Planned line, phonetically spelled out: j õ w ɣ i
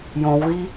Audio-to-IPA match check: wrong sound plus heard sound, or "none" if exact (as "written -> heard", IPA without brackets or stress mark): none